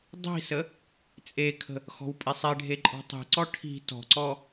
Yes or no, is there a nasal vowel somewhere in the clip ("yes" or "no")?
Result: no